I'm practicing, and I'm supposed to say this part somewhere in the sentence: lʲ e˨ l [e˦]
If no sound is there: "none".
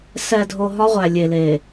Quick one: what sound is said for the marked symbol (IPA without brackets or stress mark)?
e˨